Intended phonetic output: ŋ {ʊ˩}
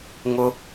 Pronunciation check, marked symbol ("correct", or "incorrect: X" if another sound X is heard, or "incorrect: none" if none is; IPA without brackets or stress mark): correct